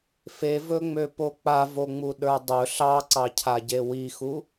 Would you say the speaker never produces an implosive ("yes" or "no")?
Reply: no